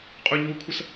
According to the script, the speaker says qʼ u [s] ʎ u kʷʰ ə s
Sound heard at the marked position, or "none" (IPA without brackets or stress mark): none